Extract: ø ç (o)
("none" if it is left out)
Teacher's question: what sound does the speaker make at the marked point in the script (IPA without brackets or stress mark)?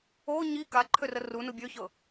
ɤ